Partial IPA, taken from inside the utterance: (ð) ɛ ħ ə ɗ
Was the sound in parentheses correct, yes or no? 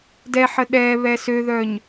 no